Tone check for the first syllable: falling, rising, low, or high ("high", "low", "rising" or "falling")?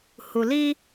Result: low